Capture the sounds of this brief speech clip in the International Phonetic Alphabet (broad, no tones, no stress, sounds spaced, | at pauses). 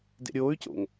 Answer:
d ḛ ɾʲ oː y̯ c o̰ ŋ